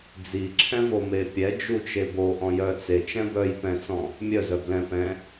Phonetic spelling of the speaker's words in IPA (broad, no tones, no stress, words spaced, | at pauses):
d͡ziǁʰɛ̃vo mepʲɛ d͡ʒut͡ʃebo ʔɔ̃jœ t͡se t͡ʃɛ̃bœj pɛ̃t͡sɔ̃ | mʲœzœ blɛ̃ pɛ̃